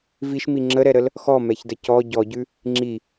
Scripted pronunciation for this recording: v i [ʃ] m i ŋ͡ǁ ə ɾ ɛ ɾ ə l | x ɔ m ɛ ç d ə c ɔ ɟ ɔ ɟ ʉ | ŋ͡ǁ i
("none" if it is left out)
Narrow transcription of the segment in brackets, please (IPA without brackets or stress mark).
ʃ